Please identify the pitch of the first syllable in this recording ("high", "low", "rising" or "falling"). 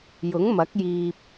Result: rising